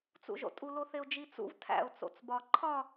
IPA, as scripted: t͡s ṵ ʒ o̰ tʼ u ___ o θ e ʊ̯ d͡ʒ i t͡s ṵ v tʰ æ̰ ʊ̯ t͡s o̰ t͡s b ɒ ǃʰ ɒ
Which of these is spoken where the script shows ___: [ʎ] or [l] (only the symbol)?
l